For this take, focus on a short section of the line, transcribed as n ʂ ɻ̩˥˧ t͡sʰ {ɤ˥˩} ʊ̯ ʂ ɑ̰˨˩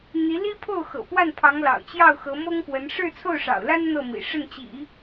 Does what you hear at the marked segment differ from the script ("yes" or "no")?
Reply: yes